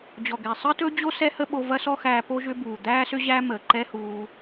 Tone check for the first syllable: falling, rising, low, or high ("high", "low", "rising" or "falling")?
low